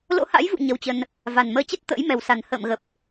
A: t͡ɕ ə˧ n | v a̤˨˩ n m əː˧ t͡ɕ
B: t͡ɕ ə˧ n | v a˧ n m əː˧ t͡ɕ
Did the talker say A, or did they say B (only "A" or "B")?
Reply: A